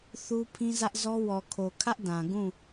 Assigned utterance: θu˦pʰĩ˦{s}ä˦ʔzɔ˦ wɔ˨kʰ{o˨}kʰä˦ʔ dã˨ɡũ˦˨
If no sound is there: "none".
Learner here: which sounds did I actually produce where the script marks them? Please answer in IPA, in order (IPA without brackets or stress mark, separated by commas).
z, o˨